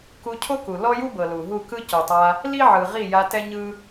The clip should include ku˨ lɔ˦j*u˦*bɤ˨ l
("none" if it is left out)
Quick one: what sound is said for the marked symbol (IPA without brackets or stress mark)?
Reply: u˦